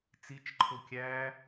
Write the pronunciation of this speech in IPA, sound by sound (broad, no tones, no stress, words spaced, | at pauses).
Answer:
t͡sit͡ʃǃʰo kʲæ